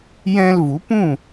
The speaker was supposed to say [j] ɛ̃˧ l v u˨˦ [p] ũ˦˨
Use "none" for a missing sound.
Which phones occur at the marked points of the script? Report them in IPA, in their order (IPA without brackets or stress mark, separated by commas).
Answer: j, p